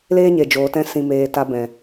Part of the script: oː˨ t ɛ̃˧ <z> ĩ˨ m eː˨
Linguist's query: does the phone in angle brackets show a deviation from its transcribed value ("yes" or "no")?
yes